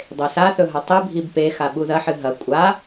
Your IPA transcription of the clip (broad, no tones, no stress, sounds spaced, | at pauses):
dˤ e s a θ ɵ ɦ ɐ tˤ i bʱ i b p e x a ɓ u ð ɐ ħ ɨ ɦ ɐ kʷʼ a